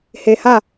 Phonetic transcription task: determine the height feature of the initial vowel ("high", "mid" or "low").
mid